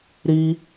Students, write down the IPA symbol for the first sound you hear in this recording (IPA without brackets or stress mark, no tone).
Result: ɾ